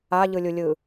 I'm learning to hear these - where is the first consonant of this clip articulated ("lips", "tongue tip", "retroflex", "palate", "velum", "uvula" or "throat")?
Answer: palate